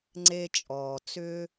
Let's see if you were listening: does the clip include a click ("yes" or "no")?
yes